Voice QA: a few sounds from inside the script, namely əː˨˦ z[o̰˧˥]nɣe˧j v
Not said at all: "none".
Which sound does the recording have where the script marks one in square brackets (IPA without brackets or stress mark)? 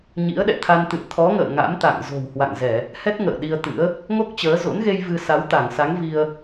o̰˧˥